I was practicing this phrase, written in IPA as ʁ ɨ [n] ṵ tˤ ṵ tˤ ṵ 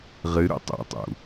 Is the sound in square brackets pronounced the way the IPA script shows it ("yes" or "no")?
no